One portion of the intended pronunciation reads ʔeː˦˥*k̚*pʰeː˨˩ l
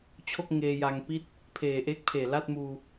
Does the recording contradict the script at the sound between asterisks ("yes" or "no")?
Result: no